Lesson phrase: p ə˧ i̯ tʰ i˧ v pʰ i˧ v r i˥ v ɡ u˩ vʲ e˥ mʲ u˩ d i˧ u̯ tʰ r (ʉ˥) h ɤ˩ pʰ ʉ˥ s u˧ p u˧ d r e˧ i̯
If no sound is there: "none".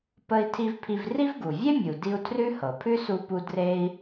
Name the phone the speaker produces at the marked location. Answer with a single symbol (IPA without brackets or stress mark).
ʉ˥